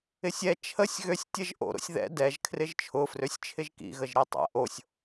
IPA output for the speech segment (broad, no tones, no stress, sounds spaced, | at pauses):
ɪ sʲ ɛ t͡ʃʰ ə sʲ ɣ ø sʲ tʲ ə ʒ ʔ o̰ ɾ o̰ sʲ ð ɛ̰ d ɛ ʒ kʰ r ɪ ʒ t͡ʃʰ ʊ f r ø sʲ t͡ʃʰ ɪ ʒ k ḭ ɣ ə ʒ ɾ i tˤ ɛ̰ ʔ o sʲ